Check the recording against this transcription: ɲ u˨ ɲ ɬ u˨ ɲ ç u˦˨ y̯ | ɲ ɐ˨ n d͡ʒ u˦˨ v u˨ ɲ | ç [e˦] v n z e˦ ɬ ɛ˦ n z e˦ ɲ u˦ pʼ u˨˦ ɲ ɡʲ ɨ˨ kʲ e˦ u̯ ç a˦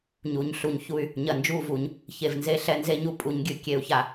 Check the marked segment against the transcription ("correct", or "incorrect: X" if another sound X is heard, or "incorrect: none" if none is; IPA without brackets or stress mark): incorrect: e˨